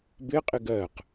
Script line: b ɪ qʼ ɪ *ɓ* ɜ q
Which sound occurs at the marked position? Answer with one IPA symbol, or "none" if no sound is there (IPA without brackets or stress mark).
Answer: ɡ